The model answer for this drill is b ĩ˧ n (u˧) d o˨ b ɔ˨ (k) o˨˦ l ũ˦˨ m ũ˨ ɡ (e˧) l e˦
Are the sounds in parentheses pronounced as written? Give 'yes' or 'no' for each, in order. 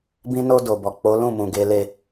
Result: no, no, yes

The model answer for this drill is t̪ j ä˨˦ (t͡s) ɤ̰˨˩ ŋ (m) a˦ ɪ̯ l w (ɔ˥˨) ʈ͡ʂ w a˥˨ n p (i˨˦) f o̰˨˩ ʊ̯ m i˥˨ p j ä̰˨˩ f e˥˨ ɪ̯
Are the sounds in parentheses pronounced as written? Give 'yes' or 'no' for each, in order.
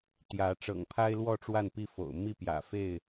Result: no, no, yes, no

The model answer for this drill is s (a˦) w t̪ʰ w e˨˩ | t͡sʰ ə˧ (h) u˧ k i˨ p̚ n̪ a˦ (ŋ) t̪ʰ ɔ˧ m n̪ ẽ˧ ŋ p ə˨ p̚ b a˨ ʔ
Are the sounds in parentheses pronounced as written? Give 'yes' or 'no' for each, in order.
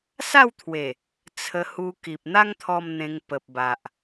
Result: no, yes, yes

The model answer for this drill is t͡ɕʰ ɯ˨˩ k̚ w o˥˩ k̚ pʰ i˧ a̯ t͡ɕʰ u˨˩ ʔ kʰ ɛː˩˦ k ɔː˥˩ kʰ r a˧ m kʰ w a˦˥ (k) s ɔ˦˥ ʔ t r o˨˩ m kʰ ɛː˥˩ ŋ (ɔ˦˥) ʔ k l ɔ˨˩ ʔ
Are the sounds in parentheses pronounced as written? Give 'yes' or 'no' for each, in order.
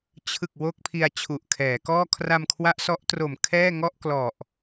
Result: no, no

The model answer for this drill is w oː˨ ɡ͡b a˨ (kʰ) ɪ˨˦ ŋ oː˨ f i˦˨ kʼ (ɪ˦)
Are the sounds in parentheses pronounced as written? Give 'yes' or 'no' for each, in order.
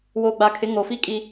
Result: yes, no

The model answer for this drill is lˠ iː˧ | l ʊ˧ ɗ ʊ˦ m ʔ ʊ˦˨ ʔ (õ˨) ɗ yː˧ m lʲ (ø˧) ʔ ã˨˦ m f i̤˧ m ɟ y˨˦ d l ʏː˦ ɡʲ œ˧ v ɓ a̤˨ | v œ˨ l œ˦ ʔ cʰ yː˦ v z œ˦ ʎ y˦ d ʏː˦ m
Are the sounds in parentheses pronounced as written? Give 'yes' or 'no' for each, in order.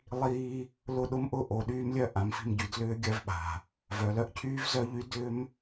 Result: no, no

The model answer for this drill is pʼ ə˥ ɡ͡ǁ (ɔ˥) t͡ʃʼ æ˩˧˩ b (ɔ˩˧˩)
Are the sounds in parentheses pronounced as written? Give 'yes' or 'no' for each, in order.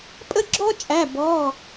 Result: yes, yes

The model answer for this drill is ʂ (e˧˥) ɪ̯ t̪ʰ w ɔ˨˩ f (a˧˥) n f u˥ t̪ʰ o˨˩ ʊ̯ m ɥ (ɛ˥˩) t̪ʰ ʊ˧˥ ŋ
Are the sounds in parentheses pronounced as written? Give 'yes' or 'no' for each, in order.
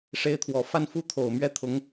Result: yes, no, yes

